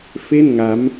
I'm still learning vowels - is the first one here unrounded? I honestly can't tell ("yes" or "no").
yes